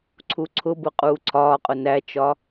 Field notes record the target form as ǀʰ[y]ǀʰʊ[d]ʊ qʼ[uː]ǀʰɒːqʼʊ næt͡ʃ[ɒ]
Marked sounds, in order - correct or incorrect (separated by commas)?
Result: incorrect, incorrect, correct, correct